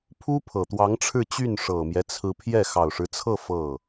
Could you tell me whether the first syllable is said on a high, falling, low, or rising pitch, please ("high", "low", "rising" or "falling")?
high